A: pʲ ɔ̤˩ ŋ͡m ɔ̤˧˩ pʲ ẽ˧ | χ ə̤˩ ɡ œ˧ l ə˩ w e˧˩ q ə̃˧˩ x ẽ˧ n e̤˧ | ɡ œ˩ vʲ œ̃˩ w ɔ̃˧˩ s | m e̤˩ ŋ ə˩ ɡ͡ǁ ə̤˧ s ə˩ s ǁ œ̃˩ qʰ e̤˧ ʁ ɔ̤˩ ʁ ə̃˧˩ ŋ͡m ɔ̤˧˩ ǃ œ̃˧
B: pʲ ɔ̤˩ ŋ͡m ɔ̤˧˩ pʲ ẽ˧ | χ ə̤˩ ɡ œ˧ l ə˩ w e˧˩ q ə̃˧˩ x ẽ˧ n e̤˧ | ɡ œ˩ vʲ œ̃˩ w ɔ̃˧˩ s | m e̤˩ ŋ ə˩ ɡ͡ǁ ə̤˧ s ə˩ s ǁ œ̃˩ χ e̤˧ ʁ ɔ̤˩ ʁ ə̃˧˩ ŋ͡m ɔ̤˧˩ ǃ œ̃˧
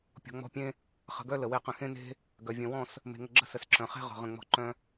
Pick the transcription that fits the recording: B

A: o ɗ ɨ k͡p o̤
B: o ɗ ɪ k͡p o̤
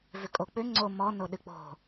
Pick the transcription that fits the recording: A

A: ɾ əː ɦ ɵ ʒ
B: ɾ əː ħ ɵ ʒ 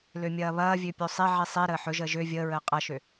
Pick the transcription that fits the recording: B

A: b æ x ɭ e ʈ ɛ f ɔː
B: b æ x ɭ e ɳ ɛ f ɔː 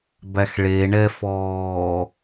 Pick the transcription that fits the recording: B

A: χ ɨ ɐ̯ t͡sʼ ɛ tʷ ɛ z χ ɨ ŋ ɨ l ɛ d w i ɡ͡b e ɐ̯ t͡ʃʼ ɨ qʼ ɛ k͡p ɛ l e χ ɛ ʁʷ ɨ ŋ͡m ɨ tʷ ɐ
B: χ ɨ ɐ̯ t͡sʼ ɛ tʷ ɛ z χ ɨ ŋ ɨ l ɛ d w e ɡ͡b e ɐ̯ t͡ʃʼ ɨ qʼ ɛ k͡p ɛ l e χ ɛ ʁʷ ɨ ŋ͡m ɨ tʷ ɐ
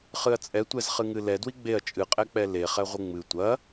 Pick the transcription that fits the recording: A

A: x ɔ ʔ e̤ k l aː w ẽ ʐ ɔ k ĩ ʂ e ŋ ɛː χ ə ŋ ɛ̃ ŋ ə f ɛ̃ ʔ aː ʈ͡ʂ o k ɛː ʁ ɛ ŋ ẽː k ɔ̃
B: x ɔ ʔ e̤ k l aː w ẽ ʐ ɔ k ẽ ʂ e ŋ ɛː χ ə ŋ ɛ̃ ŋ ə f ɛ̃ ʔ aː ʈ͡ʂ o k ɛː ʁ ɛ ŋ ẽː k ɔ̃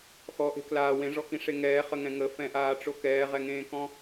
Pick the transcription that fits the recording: A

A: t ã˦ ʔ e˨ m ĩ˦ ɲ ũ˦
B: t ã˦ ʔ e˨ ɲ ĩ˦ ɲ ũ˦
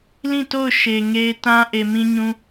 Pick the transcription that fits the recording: A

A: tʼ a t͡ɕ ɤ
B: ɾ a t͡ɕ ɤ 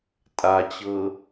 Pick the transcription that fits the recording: A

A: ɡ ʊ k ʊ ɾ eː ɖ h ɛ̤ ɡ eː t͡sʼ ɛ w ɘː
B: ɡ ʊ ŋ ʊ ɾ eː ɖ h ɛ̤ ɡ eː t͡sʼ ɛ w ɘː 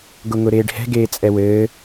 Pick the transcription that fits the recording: B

